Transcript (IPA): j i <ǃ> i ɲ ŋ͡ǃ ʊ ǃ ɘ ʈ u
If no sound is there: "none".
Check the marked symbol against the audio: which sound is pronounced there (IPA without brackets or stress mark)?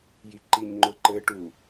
ǃ